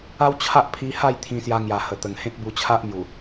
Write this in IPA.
a˦ w t͡ɕʰ a˦ ʔ pʰ i˧ h a˥˧ j t̪ʰ ĩ˧ s j a˧ ŋ j a˨˩ h ə˨˩ t̪ ə˨˩ ŋ h ẽ˦ t̚ b u˧ t͡ɕʰ a˦ ʔ m j u˨˩

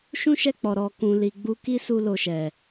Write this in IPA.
ʃ ũ˦ ʃ ɛ˦˨ k͡p ɔ˨ ɾ ɔ˨ k ũ˨ l i˨ ɡ͡b u˧ k i˦ s u˧ l o˨ ʃ ɛ˨

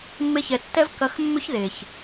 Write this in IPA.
mː e˧ ç ɛ˨ tː ɛ˦ v k ɐ˧ x mː ʏ˦ ç ð e˨ ç

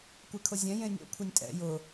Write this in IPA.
kʷ ɛ kʰ ʊ zʲ ɛ̃ j ẽ nʲ o̰ kʷʰ e nʲ tʼ ɛ̰ j ʊ

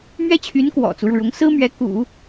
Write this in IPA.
m ɥ ɛ˥ t͡ɕʰ y˧˥ n k w ɔ̰˨˩ t͡s u˦ ɻ u˩ ɻ ʊ˧˥ ŋ s ɹ̩˥ m ɥ ɛ˧˥ k ṵ˨˩˦

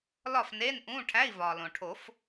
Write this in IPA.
l ɒ˥˨ f n eː˧˥˧ n ʔ ũː˧˥˧ ʈʰ æ˧˥˧ i̯ v ɒː˩ l õ˩ ʈʰ o˨˩˦ f

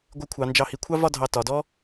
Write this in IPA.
ɡʷ ɪ˧ kʷʰ ɑ˩˧ n d͡ʒ ɑ˧˩ h i˧ kʷʰ ɑ˥ v ɒ˥˧ dʱ ɑ˧˩ t ɒ˩˧ d ɔ˥

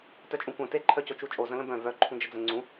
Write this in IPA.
t œ t͡ʃʼ ũ kʷ œ̃ t e ǃʰ œ c o t͡ʃ u t͡ʃʼ o z ə̃ l ə̃ b œ̃ v œ ǃʰ ũ d͡ʒ ə d͡z ə̃ ŋ͡ǀ ũ

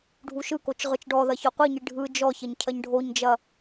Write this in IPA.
ɖʱ u ʃ ɯ k o t͡ʃ ʁ ɯ t͡ʃ ɖ ɔ ð ɐ ç ɔ qʷ i ɲ i ɖʱ ɯ d͡ʒ ɔ ç ɐ ɲ cʰ ɐ ɲ ɖʱ o ɲ d͡ʒ ɐ

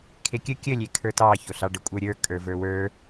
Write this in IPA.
kʰ e kʲ ə kʲ ə lʲ e kʰ ə˞ t ɑ ç o ɬ ɑ ɖ ə kʷʼ ə˞ ɾʲ ə˞ kʼ ə˞ v ə˞ w ə˞

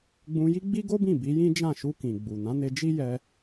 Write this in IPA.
ɡ͡b ũ˧ j i˦ ɡ͡b i˦ ɡ o˦ b ĩ˦˨ b i˨˦ j ĩ˦ d͡ʒ ã˦˨ ʃ u˧ k ĩ˨ ɡ͡b u˨ n ã˨˦ n e˧ d͡ʒ i˦ j ɛ˧

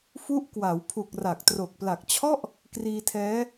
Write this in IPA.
f u˦˥ ʔ k w a˩˦ w pʰ u˨˩ k̚ r a˨˩ k̚ t r o˨˩ k̚ p l a˨˩ k̚ t͡ɕʰ ɔ˥˩ ʔ | k r iː˧ tʰ ɛː˦˥

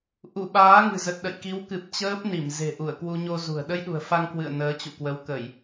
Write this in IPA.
ʔ u˧˩ ɓ aː˨˦ ŋ ɨ̤˨˩ z ə˨˩ t̚ ɗ ə̰˧˨ j k i˨˦ w k ɨ˨˩ p̚ t͡ɕ əː˦˥ p̚ n i˧˩ m z e̤˨˩ ʔ u˧˩ ə̯ k w u˧ ɲ o˧ z ṳ˨˩ ə̯ ɗ ə˧ j ɗ ṳ˨˩ ə̯ f a˧ ŋ k w ɨ̰˧˨ ə̯ n əː˨˦ t͡ɕ ṵ˧˨ k w ə˨˦ w k ə˧˩˨ j

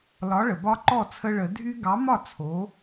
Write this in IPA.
l ɒ˨˥ ɭ ə˩ b ɒ˦ ǃ ɔ˥˩ t͡sʰ ə˦ ɭ ə˨˩˦ dʱ y˦ ɡ ɑ˨˥ m ɒ˥˩ t͡sʰ o˨˥

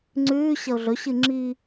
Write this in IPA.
ŋ͡ǀ ʉː ɕ ɐ ʊ̯ ɮ ɵ ɕ ɨ ŋ͡ǁ i

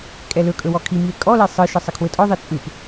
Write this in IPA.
kʼ ɛ l ɵ kʼ ɵ w ɔ kʰ i m i e̯ kʼ ɔ l ɛ sˤ ɯ ʃ ə sˤ ɘ kʰ w ɘ tʼ ɔ ðˤ i t͡sʼ ɯ p

